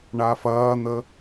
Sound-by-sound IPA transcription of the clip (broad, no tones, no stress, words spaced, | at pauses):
ɳafɐːn̪ə